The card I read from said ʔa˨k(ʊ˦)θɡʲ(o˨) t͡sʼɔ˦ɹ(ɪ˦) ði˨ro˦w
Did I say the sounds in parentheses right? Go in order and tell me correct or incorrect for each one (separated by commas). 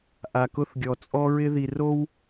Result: correct, incorrect, correct